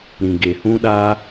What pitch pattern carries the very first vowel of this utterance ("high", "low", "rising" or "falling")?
low